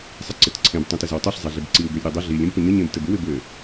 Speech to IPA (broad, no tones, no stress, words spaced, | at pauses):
sˤɪǀɪtǀʰẽb tˤĩtɪzəwtˤiɬ zˤeɮɪbǀiw ɡølʲɾʲødˤɘ ɮilʲ ẽbpəɲə ɲẽbtɘbɪw ɪbɘ